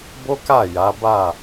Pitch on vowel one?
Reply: high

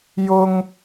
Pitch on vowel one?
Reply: high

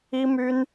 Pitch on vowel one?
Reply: high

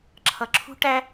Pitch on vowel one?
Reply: low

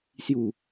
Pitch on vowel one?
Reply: low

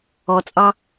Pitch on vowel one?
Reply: low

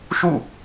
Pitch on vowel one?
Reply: falling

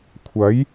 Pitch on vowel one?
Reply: rising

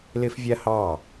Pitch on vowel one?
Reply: high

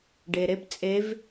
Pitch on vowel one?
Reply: low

